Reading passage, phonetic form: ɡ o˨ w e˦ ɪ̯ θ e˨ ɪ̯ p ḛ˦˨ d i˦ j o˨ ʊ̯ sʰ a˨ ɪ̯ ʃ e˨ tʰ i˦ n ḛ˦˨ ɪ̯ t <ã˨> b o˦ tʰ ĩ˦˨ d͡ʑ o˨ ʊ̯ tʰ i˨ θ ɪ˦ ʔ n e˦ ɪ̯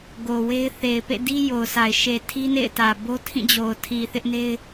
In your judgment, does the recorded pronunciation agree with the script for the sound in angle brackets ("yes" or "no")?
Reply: no